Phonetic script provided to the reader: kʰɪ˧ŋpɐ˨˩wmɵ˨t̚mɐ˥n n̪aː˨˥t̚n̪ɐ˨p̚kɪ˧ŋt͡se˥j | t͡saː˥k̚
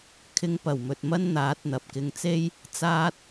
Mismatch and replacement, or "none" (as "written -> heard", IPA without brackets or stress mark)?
k̚ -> t̚